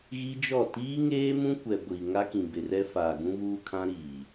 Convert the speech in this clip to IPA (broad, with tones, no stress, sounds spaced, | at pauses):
ɣ i˦ d͡ʒ ɔ˦˨ t iː˦ ŋ eː˦ m ũ˦ kʷ ɛ˨ ɡʷ i˨ ŋ a˦ k ĩ˨ b ɪ˨ r ɛ˦ f aː˨ ɡ ũ˦ β uː˦ kʰ ã˦ ɾ iː˨